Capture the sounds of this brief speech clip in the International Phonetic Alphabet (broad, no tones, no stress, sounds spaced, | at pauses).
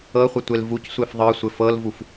ɤ χʷ ə tʷ e l v u c sʷ e f ðˤ ɤ sʷ ɘ f ɤ l v u f